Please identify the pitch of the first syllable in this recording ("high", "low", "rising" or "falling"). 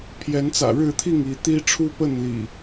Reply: rising